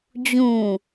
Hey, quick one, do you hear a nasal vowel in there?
yes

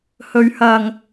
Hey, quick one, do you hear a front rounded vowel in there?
no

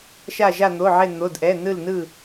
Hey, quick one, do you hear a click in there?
no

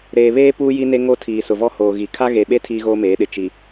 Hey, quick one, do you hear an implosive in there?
yes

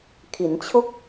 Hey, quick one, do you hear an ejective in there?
no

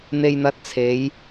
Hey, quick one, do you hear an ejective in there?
no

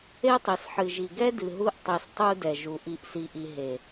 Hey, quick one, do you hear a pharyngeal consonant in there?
yes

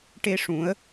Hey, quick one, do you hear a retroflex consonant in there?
yes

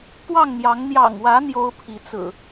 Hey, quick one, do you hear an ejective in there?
no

